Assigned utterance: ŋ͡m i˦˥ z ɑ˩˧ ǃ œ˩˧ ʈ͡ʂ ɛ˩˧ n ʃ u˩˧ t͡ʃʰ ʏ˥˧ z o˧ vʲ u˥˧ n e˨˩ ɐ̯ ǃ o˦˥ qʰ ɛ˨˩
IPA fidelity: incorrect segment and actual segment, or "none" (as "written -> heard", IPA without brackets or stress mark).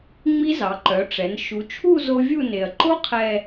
ʏ˥˧ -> u˥˧